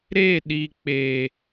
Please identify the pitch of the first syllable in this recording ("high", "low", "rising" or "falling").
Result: falling